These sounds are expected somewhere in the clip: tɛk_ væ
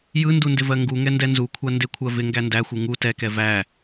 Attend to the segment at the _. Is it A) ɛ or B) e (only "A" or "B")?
A